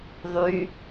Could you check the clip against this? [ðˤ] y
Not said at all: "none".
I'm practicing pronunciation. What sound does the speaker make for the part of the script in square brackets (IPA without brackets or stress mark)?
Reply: ðˤ